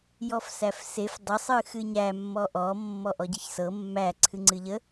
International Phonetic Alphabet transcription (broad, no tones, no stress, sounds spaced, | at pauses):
j ɔ f s æ f s e f dˤ ə sˤ ɨ x ɨ ɲ æ mː ɔ ʔ ɔ mː ɔ ʔ ɔ ɟ ɨ ç s ɤ mː æ ǀʰ ɨ ŋ͡ǀ ɨ ʎ ə